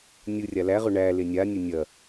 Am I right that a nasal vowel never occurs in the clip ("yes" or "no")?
yes